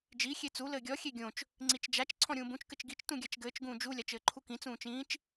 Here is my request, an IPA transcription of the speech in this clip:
d͡ʒi xʲet͡su lɘːɡʲɔ xʲeɡʲõt͡ʃ | ŋ͡ǀit͡ʃd͡ʒat͡ʃ ǀʰɔ̃ɾʲũːbũt͡ʃ kɘt͡ʃɡit͡ʃ tũɡʲat͡ʃɡɘːt͡ʃ ɡũːd͡ʒu lʲat͡ʃɘːǃʰukĩ t͡sũːt͡ʃĩːt͡ʃ

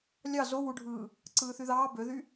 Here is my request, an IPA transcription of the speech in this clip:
lʲɑ zo wuɖʱɯː | ǀɯːθyðɑː bøðy

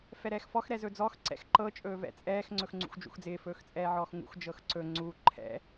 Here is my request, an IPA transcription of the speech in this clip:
fɛɾɛːxfɔx ɾɛzɵd͡zɔx ǀɛ̰xǃɤ t͡ʃʼɵːvɛ̰t͡sʼɛːx ŋ͡ǀɵxŋ͡ǀṵxd͡ʒṵxd͡zɪː fɵːxt͡sʼɛːʕɔːxŋṵx d͡ʒɤxǀɵ ŋ͡ǀu ǃʰɛ̰

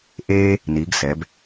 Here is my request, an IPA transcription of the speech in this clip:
ʔeː˦ | ni˩˧ɡsɛ˩˧b

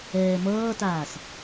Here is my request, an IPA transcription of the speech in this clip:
ɛːmʌːtaːs

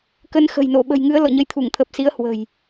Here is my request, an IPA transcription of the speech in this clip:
kə˨˦nxə̤˨˩jno˧˩ ɓə̤˨˩jŋɨ˨˦ə̯ lɔ̰˧˨ɲə˧j t̪ʰu˧˩ŋt̪ʰə˨˩p̚si˨˦ə̯ hwə̤˨˩j

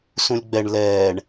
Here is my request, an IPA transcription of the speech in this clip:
sũlʲɡ͡bɛɳ lɛːɳ

